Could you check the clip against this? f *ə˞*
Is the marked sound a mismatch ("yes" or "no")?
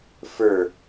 no